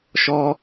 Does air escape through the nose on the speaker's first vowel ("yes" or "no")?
no